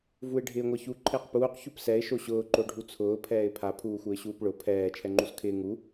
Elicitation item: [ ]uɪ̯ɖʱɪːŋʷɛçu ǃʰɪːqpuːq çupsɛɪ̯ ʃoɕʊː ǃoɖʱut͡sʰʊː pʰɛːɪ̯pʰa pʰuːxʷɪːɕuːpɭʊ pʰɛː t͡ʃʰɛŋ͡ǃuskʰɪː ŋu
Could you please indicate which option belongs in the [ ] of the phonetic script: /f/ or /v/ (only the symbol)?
v